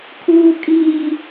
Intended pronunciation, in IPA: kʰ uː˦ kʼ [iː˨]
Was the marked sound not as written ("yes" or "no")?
yes